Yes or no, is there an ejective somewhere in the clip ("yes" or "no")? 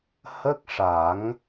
no